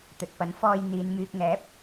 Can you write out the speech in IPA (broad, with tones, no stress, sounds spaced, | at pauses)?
t̪ ɵ˨ t̚ p ɐ˨˥ n f ɔː˨ j n̪ iː˨˧ n m yː˧ k̚ ŋ ɛː˨˥ p̚